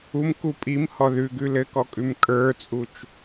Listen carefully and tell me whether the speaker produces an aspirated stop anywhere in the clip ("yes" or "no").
no